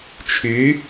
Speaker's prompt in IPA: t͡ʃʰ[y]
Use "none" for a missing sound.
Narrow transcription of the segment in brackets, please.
y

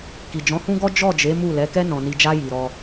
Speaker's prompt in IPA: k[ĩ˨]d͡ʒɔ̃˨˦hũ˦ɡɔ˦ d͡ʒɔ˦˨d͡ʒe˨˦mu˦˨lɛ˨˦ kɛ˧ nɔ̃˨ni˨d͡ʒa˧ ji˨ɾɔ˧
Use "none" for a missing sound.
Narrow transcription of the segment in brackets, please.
i˨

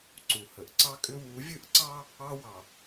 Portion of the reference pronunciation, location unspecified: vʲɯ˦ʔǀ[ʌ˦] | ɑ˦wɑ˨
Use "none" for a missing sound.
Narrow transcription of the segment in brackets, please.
ɑ˦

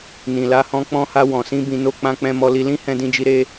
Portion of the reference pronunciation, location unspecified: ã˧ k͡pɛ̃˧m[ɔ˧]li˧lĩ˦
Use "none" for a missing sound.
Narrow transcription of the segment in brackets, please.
ɔ˧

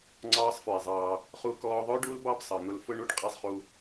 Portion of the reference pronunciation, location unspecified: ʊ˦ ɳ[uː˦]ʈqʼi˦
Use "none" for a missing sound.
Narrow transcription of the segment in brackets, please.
u˦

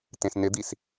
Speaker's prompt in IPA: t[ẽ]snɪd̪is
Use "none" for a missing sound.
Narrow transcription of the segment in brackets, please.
ẽ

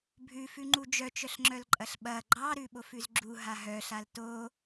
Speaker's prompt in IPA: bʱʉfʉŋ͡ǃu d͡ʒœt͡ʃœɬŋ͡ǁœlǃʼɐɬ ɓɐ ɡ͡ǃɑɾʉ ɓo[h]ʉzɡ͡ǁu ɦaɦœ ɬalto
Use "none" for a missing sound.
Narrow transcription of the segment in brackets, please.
f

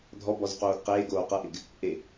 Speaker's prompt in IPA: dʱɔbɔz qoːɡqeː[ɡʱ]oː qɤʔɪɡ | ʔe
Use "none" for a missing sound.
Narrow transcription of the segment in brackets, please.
ɡ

